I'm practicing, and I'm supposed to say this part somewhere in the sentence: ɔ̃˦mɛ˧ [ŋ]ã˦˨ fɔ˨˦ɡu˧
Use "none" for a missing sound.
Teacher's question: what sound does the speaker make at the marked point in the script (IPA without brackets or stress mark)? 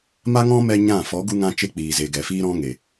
ɲ